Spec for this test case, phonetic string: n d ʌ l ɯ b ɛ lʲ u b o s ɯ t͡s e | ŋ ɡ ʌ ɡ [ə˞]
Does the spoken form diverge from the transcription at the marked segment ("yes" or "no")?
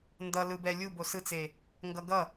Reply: yes